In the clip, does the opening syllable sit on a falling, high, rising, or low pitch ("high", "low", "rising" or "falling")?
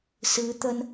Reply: rising